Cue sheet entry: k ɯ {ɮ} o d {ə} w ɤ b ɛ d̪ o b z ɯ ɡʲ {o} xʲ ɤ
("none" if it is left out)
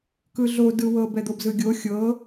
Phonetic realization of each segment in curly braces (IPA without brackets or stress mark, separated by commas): ɮ, ɯ, o